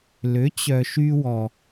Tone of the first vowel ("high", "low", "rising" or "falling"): rising